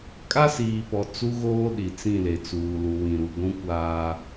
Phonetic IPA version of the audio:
kʼ a˦ s iː˨ p ɔ˨ t͡s u˦ ɣ oː˦ ɗ i˨ t͡s ĩ˦˨ l e˨ t͡s uː˨ l u˨ w ĩ˨ ɾ u˨ ɡʷ ũ˦ kʷ aː˦

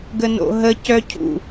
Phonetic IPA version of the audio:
ɡ ə n o̰ ɦ ə c œ cʰ ṵ

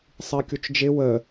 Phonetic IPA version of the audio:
sˤ i kʲ u t͡ʃ d͡ʒ ɪ w ə

